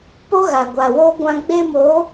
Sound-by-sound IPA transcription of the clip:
p o˦ ɣ a˨ ɡʷ a˨ w oː˦ ɡʷ ã˦ ɡ͡b e˦ m o˨˦

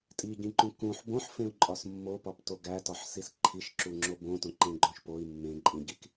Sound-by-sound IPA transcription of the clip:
tʼ i ɟ ĩ ǃ ũ k ũ ħ b õ ħ f ẽ u̯ ǃʼ ɒ s mː o p ɒ p t o ɡ æ t ɒ ħ s i s ǃʰ i ʃ ǁ u ŋ͡ǁ o b õ t õ ǃ ẽ ɡ͡ǃ õ ʃ p o i̯ mː ẽ ǃʼ ĩ ɟ i k

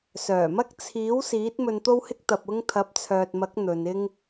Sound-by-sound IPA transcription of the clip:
s œː˨˩ m ɐ˥ k̚ t͡sʰ iː˨˥ w s iː˨˥ t̚ m ɵ˧ n t̪ o˥ w h ɪ˥ k̚ t̪ ɐ˧ p̚ ʊ˥ ŋ t̪ʰ ɐ˨˥ p̚ t͡sʰ œː˨ t̚ m ɐ˨˥ k̚ n̪ ɵ˨˧ n ɪ˥ ŋ

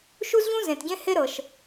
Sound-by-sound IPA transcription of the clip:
ʃ u˥ z ʎ ũ˥ z ẽ˩ t ɟ ẽ˥ h e˥ ɾ ɤ˩ ʃ

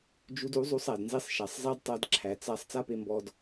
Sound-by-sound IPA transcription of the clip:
d͡ʒ u˧ d u˨˦ zˤ u˧ sˤ æ˨ d n z i˧ sˤ ʃ a˨ sˤ zˤ æ˦ d tˤ a˧ d ǁʰ æ˨ t͡s a˧ sˤ t͡s a˦ p e˧ m b ɔ˧ d

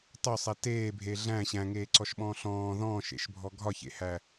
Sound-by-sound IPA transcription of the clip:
tˤ o sˤ ɛ t eː bʱ e ɮ æ̃ ɕ æ̃ ŋ eː ǀ ɔ ʃ ɓ ɔ̃ː ɬ ɔ̃ː ð ɔ̃ː ʃ ḛ ʃ bʱ ɔ ɡʱ ɒ ç ḛ h æ

